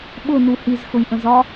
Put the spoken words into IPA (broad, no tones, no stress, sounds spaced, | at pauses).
ɓ ʊ n u h i z x ʊ j ʔ ə̃ z ɒ